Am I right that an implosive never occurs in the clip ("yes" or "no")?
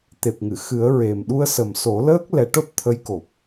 no